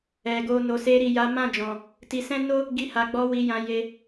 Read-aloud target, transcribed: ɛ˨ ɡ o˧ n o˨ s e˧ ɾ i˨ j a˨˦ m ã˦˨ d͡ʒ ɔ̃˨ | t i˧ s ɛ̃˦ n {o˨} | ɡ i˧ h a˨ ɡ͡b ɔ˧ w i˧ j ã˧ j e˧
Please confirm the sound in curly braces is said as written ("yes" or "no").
no